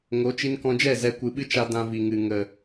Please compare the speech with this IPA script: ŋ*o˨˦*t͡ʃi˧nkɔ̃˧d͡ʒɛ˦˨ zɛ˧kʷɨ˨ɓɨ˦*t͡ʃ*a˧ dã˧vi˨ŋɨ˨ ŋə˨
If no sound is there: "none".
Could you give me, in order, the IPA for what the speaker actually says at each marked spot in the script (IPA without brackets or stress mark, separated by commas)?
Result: o˨˦, t͡ʃ